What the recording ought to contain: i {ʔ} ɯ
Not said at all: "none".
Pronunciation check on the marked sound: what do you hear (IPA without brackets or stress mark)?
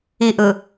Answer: ʔ